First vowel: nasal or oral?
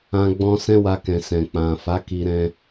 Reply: nasal